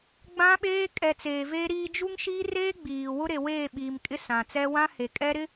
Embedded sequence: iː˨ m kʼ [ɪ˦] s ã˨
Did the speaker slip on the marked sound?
no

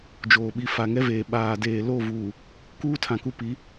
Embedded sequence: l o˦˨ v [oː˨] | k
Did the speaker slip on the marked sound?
yes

